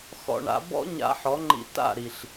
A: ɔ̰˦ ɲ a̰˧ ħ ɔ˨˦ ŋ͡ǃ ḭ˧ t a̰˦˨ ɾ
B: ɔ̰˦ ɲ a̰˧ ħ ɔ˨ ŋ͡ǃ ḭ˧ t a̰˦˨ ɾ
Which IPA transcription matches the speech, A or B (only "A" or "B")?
A